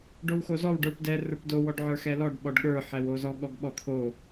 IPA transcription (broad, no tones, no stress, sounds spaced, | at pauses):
ɖ o w x o z ɔ w ɖ ə˞ p d ɛ r ə˞ p d o w ɔ ɖ ʕ ə˞ x ɛ l ɔ ɖ ɓ ɔ ɖ ɠ ə˞ ħ ɛ w o z ɔ ɠ ɔ ɡ ɓ ɔ t̪ʰ o